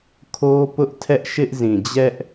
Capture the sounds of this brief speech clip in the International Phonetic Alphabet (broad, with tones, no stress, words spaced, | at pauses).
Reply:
kʰo˦pʊ˦ʔtʰɛ˦ʔ ʃɪ˦ʔzĩ˨ d͡ʑɛ˦ʔ